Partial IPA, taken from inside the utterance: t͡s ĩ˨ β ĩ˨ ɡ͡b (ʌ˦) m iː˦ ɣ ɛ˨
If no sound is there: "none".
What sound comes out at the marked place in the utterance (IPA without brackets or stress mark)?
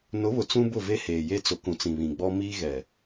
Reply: ɔ˦